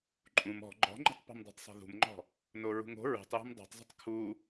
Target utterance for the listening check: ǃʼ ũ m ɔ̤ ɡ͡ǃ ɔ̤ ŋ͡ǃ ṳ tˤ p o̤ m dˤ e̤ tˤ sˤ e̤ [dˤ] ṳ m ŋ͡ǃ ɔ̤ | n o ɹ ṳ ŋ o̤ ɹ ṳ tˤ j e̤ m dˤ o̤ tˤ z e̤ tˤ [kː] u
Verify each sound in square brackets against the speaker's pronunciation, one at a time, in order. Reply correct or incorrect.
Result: incorrect: ð, incorrect: kʰ

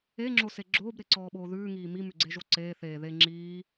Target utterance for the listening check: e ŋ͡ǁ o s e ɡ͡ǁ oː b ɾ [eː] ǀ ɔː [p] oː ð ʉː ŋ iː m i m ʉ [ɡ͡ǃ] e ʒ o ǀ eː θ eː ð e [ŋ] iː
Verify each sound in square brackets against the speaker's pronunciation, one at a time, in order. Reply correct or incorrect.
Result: incorrect: e, incorrect: ɓ, incorrect: ɡ͡ǀ, incorrect: ŋ͡ǁ

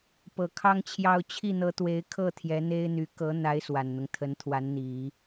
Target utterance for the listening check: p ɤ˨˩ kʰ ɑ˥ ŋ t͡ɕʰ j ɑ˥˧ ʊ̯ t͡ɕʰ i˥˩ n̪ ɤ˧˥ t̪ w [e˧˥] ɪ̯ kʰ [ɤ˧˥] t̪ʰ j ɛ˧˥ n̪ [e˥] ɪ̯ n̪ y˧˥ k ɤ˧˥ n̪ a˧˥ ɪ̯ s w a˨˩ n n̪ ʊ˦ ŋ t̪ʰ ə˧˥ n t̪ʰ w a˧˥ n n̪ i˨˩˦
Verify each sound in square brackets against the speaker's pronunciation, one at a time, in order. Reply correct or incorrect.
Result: correct, incorrect: ɤ˥˩, correct

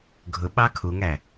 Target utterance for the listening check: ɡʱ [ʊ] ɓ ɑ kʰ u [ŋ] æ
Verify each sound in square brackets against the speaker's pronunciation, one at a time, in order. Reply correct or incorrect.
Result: correct, correct

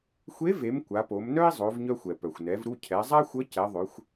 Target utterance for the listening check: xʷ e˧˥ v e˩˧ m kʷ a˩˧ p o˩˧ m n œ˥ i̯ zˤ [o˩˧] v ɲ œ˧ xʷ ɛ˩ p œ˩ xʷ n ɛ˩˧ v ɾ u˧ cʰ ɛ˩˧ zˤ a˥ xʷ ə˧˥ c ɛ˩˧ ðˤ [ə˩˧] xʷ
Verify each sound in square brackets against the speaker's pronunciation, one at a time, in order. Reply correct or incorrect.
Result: correct, incorrect: ø˩˧

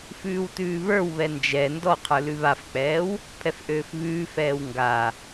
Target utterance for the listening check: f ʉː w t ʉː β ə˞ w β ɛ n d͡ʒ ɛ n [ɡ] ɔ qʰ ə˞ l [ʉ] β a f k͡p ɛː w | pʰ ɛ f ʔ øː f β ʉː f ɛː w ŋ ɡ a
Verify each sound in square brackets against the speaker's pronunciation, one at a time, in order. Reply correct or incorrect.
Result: incorrect: d, correct

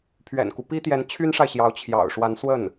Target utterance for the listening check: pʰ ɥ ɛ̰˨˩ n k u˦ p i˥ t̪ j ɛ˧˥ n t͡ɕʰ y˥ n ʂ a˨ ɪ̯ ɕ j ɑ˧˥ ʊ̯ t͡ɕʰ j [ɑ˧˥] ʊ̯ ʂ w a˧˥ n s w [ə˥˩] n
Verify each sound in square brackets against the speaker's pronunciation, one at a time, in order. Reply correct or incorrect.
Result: incorrect: ɑ̰˨˩, correct

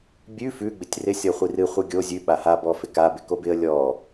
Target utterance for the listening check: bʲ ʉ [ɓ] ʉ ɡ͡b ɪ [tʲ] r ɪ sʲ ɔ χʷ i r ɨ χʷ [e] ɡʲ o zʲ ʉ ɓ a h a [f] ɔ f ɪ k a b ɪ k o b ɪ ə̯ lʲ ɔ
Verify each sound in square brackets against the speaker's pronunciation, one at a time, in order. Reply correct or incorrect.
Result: incorrect: f, correct, incorrect: ɨ, incorrect: b

